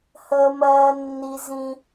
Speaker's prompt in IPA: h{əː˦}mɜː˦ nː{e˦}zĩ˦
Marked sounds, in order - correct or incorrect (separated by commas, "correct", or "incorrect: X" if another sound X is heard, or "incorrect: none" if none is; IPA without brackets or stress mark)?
correct, incorrect: i˦